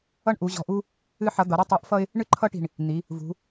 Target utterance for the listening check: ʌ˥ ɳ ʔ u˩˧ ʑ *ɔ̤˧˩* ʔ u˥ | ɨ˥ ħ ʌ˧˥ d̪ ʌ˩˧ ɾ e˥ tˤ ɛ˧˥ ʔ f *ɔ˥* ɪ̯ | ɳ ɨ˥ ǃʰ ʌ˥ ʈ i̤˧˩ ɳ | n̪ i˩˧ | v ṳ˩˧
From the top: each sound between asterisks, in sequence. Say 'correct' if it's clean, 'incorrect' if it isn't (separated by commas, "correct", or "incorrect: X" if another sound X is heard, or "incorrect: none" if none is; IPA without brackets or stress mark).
correct, incorrect: ʌ˥